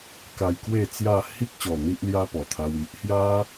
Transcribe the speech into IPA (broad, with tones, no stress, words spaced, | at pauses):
ka˧jkwe˥˧t͡sja˥˧ hi˦k̚ɕɔ˨˩ n̪i˦ʔlja˦pɔ˨˩t̪ʰa˧w i˨ʔhja˦